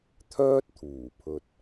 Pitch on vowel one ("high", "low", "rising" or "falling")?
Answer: high